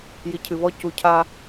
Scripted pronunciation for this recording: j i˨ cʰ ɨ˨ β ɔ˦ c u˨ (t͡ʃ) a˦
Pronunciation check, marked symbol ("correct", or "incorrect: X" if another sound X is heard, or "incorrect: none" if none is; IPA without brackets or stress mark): incorrect: cʰ